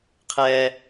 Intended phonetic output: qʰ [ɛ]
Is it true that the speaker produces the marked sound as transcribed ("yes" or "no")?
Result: yes